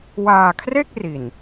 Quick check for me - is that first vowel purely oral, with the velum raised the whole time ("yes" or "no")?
yes